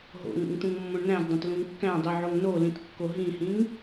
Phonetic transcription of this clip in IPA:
ɦ o̰ ŋ ṵ ŋ t̪ ũ ŋ mː õ ɳ n æ̃ z dˤ ẽ t l ũ ŋ kː æ̃ dˤ i ʕ o ŋ n o l ĩ t kː o ɦ ĩ h ĩ ŋ

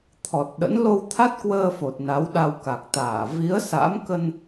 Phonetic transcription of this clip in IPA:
t̪ʰ ɔ˨˩ t̚ ɗ ə̰˧˥ n l o˧ w t̪ʰ a˦˥ t̚ k w əː˧ f o˨˩ t̚ n a˨˦ w ɗ a˧ w k a˨˩ k̚ t̪ aː˧˩ v i˨˦ ə̯ s a̰˧˥ m k ə˧ n

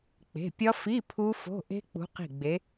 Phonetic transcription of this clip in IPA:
k͡p e̤˩˧˩ pʲ ɒ˦˥ f i˧˥˧ pʰ u˦˥ f o̤˧˥˧ ʔ e̤˦˥ k͡p ṳ˨˦ q i̤˧˩ ɡ͡b e˨˦

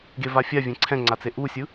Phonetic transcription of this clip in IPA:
ɡ e v a fʲ a vʲ ẽ ǀʰ ɛ̃ ŋ͡ǀ a t͡s e ʔ u sʲ ɯ

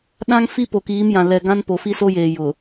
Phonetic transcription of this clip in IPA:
ɗ ã˦ ŋ f i˦ p o˨ k iː˨˦ m j ã˨ l ɛ˨ ɡ ã˦ n p o˨ f i˦ s o˦ j eː˨ j ʊ˨

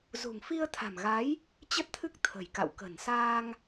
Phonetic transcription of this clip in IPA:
z ṳ˨˩ ŋ f i˧ ə̯ t̪ʰ a̤˨˩ m ɣ a˨˦ j | t͡ɕ ə˦˥ t̚ t̪ʰ ɨ˦˥ k̚ t̪ʰ ə̤˨˩ j k a̰˧˨ w k ə̤˨˩ n s aː˧ ŋ

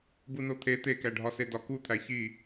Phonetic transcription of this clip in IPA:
b u n o t̪ʰ e t̪ e k æ ɖʱ ɒ s e d ɒ k u t̪ʰ æ ç i

